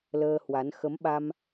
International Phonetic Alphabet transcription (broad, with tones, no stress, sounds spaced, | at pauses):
l əː˧ h w a˨˦ n x ə˨˦ m ɓ a˧ m